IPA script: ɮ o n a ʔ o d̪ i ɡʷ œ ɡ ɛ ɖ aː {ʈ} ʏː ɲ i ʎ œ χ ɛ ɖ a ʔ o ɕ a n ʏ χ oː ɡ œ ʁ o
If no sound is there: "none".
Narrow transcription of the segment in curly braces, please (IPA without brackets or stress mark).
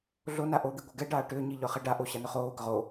ʈ